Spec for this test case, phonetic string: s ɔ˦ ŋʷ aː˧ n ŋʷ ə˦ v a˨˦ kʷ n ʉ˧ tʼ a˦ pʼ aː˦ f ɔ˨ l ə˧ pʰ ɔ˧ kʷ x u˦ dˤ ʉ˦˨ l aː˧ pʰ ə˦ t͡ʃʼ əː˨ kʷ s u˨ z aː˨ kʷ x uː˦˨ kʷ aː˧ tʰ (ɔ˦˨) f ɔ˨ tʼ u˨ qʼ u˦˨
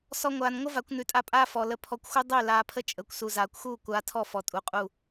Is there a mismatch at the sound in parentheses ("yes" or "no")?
no